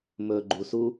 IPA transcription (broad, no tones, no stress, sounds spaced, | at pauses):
m ɵ ɡ͡ǃ u s u